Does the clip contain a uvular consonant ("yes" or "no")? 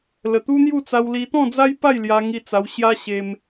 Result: no